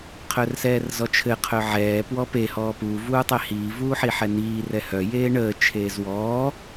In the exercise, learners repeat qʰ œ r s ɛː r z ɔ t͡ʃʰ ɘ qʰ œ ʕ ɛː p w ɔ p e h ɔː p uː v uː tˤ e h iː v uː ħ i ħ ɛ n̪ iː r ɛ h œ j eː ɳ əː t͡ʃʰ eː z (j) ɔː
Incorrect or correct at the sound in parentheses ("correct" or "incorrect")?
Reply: incorrect